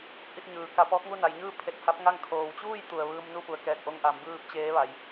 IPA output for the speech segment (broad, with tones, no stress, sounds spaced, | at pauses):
ʔ i˧ t̚ ɲ ɯː˩ k a˧ p ɔː˧˥ k̚ ŋ u˥˨ n a˩˧ j ɲ ɯː˥˨ pʰ e˧˩ t̚ h a˧˥ p̚ ŋ a˥˨ ŋ kʰ oː˩ w t͡ɕ uː˥˨ j t̪ u˩ ə̯ ʋ ɯː˧ m n u˥˨ p u˩ ə̯ k ɛː˧˩ k̚ ʔ o˧ ŋ ʔ a˩˧ m b ɯː˥˨ p̚ t͡ɕ eː˧˥ ʋ a˩˧ j